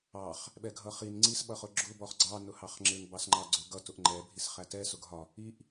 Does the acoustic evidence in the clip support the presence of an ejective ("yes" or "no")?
no